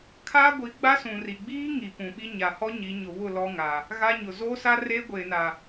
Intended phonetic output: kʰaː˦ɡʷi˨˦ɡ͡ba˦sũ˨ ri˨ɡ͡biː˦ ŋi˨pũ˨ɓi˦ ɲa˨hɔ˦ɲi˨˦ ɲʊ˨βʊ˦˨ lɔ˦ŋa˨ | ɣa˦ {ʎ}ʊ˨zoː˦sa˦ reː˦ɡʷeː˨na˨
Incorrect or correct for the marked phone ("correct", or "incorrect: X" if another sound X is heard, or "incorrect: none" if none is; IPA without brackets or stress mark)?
incorrect: ɲ